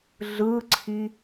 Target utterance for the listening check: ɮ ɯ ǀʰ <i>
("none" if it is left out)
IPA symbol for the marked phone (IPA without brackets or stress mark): i